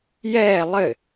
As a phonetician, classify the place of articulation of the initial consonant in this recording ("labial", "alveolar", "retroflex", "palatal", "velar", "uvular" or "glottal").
palatal